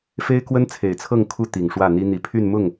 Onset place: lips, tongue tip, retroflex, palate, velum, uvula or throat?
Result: lips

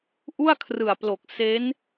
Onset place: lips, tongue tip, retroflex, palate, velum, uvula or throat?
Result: throat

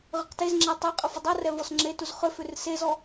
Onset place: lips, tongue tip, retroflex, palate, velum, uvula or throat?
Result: uvula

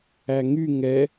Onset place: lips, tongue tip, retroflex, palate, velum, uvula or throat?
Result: velum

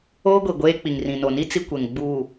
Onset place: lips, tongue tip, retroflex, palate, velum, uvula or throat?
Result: velum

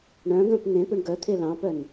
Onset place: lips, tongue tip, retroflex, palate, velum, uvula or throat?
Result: retroflex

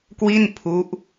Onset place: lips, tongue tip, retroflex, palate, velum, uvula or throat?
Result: velum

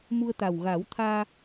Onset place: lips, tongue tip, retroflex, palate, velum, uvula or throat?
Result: lips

